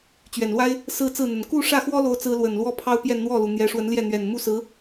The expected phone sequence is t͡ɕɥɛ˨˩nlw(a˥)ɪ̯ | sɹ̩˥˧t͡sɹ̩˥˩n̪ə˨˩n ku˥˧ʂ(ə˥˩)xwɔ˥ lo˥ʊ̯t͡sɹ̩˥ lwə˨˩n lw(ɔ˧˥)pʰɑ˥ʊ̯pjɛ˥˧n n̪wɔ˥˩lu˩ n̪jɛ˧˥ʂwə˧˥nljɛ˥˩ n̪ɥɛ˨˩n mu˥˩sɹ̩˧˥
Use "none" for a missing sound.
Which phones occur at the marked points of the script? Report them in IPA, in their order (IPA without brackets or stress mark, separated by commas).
a˥, ä˥˩, ɔ˥